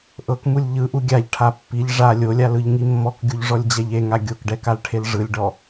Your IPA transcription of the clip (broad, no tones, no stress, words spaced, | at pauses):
ʔɤkmulʲ ʎɯʔu ɡʲaʎʈʰa pːiʎ ʐa lʲolʲalɯʎŋi mːɔkɡʲuʎʐɔlʲd͡ʑɛʎ eŋa ɡʲokɖɛkalʈʰel ʐɯlʲɖɔ